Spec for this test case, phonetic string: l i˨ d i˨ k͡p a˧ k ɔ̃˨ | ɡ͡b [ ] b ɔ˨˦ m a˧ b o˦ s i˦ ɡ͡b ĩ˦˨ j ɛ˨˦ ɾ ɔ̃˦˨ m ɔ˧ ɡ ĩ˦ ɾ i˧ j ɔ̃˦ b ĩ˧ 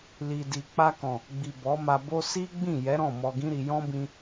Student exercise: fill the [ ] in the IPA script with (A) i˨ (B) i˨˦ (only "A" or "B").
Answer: A